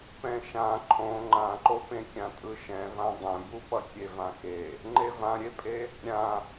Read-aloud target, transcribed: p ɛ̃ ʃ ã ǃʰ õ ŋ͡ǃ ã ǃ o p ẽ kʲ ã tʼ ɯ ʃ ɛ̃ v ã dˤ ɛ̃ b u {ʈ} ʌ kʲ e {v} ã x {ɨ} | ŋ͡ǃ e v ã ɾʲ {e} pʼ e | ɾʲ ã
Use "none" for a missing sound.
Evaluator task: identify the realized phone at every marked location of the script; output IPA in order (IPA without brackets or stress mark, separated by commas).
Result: p, v, e, e